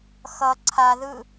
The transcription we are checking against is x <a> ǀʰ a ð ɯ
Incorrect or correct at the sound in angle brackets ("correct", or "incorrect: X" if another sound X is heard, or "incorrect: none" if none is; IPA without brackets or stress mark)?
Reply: incorrect: ʌ